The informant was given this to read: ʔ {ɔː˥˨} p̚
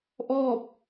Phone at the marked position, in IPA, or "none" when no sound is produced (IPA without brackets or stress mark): ɔː˥˨